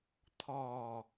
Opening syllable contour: low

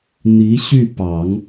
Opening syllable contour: rising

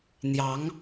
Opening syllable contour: rising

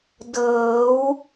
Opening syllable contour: rising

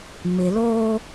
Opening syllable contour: low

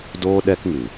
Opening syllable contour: high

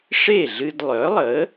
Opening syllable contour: falling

